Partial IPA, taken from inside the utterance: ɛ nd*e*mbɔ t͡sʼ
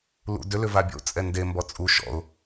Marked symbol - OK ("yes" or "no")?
yes